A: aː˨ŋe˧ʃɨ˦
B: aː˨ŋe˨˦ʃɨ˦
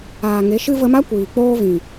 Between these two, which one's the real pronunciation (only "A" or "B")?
B